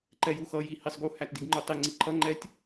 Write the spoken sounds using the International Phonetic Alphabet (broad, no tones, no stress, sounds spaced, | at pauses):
ǃ ɛ j u x ʌ j i h i sˤ ɡ u h æ t d i ɡ ŋ͡ǃ u tˤ i ŋ͡ǀ i ǃʰ ʌ ŋ͡ǃ ɛ tʲ